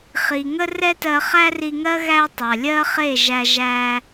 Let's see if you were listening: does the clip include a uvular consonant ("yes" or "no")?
yes